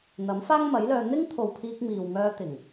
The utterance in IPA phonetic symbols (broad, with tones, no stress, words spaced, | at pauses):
n̪ɐ˨˥mfaː˥ŋmɐ˨˥jlœː˧ n̪ɪ˥ŋt̪ʰo˨wpʰiː˧k̚ miː˨wŋœː˧ t̪ɪ˨˩ŋ